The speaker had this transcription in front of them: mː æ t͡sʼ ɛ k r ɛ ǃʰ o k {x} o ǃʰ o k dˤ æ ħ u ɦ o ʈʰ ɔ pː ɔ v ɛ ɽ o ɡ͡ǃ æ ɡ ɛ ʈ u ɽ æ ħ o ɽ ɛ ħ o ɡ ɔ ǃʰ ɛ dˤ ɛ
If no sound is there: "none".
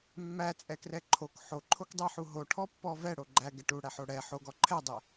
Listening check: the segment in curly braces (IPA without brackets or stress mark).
ħ